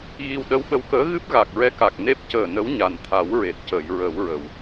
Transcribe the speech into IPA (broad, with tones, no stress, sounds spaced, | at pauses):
ɣ i˧ w ɗ ə˧˥ w ɓ ə˧˥ w k əː˧˥ ɣ ɨ˦˥ p̚ ɣ a˨˩ k̚ ɹ ɛ˧˥ k a˨˩ k̚ n e˦˥ p̚ c əː˨˩ n ə˧˥ w ɲ a˨˩ n t̪ʰ a˨˩˦ w ɹ e˨˩ t̚ c əː˨˩˨ j ɹ ə˨˩˦ w ɹ ə˨˩˨ w